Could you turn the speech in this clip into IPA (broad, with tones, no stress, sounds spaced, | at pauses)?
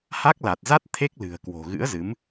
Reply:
h a˦˥ k̚ l a˨˩ t̚ z a˦˥ t̚ t̪ʰ e˦˥ k̚ l ɨ̤˨˩ ə̯ k w o̤˨˩ ɣ ɨ̰˧˥ ə̯ z ɨ˨˦ m